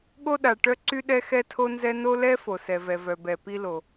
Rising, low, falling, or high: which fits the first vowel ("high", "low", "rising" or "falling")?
high